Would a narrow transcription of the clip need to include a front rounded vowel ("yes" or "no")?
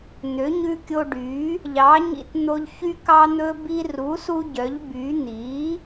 yes